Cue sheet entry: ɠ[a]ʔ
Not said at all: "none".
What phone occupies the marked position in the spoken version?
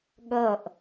ʌ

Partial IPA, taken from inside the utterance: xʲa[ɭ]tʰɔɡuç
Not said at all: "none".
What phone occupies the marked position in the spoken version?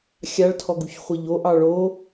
ɭ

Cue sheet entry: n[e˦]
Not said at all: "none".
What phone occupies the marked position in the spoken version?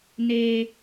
eː˦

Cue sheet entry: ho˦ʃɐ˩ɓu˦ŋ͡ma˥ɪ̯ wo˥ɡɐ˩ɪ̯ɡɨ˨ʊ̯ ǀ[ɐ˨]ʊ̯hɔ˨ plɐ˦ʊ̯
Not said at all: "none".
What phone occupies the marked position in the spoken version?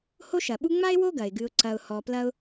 ɐ˨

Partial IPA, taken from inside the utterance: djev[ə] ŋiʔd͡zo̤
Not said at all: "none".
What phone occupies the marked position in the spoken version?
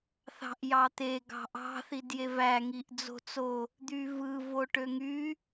æ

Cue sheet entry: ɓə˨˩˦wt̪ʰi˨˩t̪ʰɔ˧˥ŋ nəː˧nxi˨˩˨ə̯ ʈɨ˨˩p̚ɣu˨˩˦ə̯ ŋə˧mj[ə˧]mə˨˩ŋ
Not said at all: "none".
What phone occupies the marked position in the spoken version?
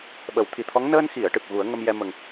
ɛ˧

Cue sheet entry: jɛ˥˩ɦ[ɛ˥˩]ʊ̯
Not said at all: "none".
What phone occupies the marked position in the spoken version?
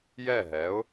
ɛ˩˥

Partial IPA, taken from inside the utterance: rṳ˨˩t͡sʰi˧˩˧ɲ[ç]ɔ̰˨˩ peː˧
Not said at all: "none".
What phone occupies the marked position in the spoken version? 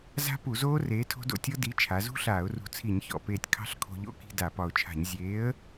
ç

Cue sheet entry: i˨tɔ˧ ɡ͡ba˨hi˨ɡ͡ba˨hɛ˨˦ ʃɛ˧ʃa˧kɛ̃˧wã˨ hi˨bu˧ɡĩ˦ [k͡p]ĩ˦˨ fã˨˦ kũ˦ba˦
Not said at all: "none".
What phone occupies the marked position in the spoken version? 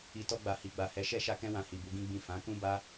ɡ͡b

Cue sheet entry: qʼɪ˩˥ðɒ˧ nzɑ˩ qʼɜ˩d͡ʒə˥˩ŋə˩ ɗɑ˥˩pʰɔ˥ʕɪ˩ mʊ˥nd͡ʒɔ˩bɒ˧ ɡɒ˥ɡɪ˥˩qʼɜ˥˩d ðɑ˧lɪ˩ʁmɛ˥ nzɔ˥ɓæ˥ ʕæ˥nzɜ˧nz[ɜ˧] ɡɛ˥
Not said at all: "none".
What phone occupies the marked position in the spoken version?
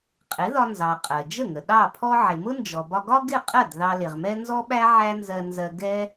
ɜ˧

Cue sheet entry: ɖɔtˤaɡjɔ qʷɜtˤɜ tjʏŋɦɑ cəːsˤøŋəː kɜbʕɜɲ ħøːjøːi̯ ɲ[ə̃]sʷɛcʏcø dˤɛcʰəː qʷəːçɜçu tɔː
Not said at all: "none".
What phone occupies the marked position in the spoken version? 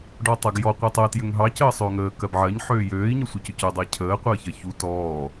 ə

